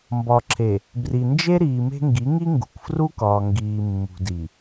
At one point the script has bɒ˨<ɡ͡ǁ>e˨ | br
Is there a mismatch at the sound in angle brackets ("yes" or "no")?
yes